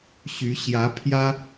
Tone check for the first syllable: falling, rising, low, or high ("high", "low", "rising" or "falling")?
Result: rising